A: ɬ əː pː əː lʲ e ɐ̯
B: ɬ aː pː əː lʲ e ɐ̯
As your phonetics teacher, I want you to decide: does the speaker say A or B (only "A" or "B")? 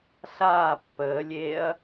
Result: B